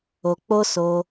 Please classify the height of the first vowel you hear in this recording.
mid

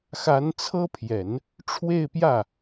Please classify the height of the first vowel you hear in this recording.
low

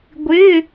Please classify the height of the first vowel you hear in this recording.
high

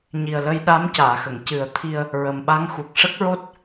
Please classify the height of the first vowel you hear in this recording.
high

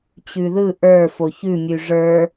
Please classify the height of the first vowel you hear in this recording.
high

